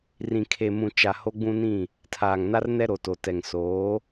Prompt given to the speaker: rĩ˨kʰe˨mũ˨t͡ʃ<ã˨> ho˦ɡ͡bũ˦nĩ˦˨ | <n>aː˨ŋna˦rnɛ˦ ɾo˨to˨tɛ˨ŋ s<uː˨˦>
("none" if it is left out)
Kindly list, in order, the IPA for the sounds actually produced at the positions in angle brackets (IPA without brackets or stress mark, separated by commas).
a˨, tʰ, oː˨˦